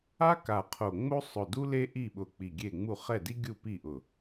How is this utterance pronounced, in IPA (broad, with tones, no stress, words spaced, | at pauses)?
a˥ ka˧˩qʰo˧˩ ŋ͡mo˥ sˤʊ˧˩du˥ le˥ʔi˥˩ɓʊ˧˩ k͡pi˧˩ɡʲe˥˩ ŋ͡mu˥˩ χɛ˥˩di˥ ɡʲu˥˩pi˥˩ʔʊ˧˩